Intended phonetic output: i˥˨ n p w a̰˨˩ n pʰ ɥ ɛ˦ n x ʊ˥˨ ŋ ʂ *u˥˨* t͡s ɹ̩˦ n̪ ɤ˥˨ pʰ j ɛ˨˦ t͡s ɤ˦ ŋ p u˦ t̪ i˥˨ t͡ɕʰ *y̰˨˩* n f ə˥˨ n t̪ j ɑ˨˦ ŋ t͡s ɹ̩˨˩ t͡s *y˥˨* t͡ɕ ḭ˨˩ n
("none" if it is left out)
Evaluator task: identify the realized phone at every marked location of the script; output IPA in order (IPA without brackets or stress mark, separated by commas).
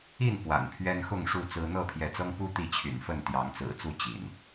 u˥˨, y̰˨˩, u˥˨